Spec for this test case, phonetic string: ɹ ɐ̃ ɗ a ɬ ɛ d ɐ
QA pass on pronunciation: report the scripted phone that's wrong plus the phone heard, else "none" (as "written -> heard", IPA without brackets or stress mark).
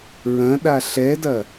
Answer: none